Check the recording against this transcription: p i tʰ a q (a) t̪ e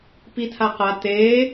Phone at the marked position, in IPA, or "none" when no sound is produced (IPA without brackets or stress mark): a